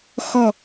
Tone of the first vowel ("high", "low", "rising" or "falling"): falling